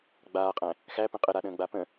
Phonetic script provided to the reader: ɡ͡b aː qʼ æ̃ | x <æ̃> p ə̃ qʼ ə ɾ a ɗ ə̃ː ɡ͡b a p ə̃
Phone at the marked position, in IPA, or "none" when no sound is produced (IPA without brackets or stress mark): æ